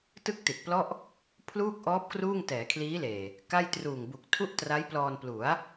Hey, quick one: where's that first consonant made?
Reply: tongue tip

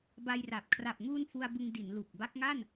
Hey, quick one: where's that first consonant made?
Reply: lips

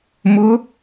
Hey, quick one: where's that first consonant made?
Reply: lips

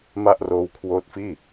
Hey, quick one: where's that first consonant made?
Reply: lips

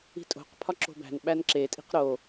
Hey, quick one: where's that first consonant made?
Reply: tongue tip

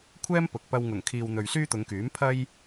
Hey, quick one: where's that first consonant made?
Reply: velum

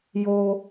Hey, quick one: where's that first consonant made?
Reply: palate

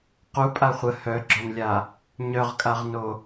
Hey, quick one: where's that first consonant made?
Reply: uvula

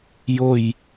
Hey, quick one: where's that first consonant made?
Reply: palate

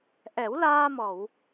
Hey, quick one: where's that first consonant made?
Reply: throat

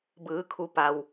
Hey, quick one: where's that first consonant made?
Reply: lips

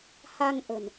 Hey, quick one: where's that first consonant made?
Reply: throat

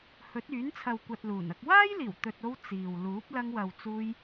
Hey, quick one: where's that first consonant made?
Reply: throat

